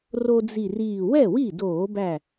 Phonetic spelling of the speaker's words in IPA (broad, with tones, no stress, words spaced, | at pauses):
ro˦d͡zi˧˩riː˧˩ wɛ˥˩wi˥˩doː˧˩˧bæ˧˩